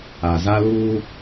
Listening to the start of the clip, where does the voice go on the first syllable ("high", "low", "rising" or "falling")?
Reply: low